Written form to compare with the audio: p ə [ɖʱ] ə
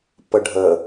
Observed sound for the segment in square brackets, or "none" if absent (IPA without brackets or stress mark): ɖʱ